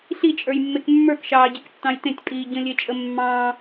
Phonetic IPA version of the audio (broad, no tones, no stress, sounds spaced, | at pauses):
ɬ i t͡ʃʼ ə˞ j mː e k mː ə˞ k ʃ ɑː ɟ i k tː ɑ̃ j t ẽ tʲ pʼ iː ɟ ə̃ lʲ e t͡ʃʼ ə mː ɑ̃